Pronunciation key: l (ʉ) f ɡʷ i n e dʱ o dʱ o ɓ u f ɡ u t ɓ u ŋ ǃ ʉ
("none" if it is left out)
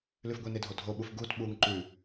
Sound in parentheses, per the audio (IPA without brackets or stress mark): ʉ